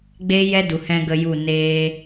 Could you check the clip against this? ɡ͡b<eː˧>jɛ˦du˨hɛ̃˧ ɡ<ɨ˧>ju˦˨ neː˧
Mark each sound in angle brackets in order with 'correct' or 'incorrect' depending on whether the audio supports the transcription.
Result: incorrect: eː˦, incorrect: ə˧

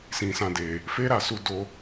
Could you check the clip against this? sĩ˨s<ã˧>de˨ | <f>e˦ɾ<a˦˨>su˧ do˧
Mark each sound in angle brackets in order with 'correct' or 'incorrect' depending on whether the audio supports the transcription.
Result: correct, correct, correct

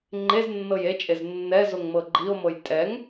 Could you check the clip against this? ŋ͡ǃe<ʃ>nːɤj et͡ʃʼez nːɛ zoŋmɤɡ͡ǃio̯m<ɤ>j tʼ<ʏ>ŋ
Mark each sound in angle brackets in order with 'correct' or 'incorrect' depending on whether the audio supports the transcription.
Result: incorrect: z, correct, incorrect: ɛ

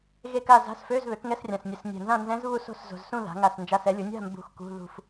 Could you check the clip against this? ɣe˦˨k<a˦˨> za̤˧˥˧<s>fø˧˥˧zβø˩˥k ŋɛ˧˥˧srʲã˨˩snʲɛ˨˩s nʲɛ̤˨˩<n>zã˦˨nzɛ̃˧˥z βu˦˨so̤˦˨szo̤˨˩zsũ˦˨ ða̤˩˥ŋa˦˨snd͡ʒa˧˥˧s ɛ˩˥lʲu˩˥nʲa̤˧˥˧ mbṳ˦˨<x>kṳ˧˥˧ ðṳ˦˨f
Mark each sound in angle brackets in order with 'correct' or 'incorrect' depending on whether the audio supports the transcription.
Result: correct, correct, correct, correct

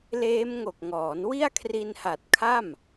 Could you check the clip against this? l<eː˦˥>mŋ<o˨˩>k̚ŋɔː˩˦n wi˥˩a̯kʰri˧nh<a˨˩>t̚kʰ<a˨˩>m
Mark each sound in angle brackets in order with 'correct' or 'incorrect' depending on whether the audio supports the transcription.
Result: correct, correct, correct, incorrect: a˥˩

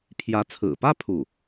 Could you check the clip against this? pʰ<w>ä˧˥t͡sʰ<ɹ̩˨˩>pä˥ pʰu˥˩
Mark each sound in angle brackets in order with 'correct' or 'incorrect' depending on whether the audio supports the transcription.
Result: incorrect: j, correct

